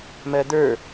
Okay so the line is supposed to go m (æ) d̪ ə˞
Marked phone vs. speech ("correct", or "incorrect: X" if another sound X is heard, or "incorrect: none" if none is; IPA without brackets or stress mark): incorrect: ɜ